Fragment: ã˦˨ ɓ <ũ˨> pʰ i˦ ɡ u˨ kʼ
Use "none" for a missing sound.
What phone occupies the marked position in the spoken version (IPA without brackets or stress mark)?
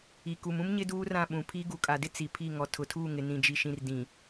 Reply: ũ˨